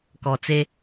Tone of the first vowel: low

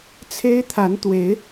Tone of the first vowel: high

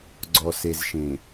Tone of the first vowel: low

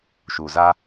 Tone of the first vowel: low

